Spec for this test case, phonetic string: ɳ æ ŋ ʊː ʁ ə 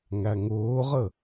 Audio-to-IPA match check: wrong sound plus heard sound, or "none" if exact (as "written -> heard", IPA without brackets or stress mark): ɳ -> ŋ